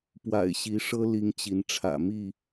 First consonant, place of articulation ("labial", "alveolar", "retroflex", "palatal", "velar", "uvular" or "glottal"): labial